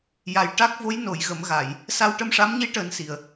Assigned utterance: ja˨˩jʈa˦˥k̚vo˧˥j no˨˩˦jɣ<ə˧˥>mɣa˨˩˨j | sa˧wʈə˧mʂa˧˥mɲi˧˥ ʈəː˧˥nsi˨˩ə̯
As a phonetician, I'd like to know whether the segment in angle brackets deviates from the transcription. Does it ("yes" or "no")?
yes